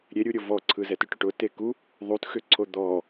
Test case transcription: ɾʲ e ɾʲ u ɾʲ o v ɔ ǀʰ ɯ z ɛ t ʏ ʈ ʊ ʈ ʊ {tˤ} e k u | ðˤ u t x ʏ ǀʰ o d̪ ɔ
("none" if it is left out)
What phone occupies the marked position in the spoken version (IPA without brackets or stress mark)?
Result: t